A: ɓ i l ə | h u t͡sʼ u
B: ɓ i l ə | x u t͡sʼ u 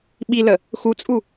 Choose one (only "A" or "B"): B